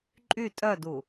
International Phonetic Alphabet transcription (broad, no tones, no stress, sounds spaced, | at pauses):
ǃʼ y tʼ œ d u